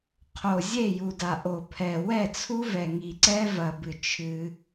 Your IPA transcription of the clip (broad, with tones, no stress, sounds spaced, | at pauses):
qʰ o˨ zʲ e˦˨ j u˨ d a˨ ʔ o˨ pʰ ɛ˨ w ɛ˦˨ t͡sʰ u˦ v ɛ˨ ŋ i˨ ǀ ɛ˦ v ɐ˨ b ɨ˨ t͡ʃʰ ɨ˦